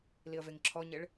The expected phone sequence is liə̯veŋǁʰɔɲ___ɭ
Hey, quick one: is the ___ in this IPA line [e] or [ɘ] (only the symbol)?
e